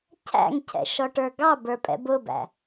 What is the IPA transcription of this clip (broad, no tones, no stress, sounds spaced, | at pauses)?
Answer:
cʰ æ̰ ŋ cʰ ɛ̰ ʃ ɔ ʈ ə˞ ɡ ɑ b ə˞ pʼ ɛ̰ b ʊ b æ̰